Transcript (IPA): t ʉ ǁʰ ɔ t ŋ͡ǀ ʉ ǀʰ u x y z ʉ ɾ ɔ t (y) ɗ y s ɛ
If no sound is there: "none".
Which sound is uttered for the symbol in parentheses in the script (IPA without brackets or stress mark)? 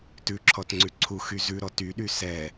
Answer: y